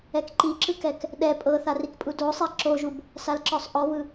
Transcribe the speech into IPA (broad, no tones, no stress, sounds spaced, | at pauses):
ɛ k ǃ i ǁ ɯ k ɛ k | ɗ ɛ pʼ ɤ θ a r i k pʼ u d o sˤ ɛ ǁ o ʒ u b | s a l ǁ ɔ sˤ ʔ ɔ v ɯ